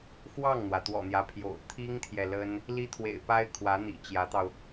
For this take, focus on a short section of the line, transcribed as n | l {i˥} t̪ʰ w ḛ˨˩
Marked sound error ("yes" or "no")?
no